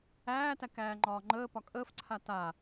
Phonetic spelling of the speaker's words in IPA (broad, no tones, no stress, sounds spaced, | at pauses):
æː t æ k æː ŋ͡ǃ ɒː ŋ͡ǃ əː p ɒ kʼ əː f ǀʰ a t a